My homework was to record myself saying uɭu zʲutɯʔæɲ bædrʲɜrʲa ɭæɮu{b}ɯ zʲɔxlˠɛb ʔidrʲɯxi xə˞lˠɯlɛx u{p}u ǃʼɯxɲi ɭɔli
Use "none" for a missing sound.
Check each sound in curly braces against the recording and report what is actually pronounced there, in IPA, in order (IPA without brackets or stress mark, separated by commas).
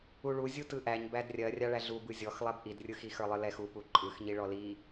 b, p